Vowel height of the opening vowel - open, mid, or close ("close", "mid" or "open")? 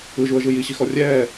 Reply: close